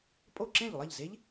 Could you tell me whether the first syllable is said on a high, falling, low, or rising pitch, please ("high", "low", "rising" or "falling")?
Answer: falling